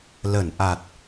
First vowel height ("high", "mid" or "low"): mid